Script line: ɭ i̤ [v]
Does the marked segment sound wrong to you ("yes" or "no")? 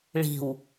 yes